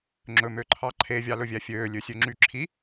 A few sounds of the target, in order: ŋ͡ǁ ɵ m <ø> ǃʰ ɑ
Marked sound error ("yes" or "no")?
no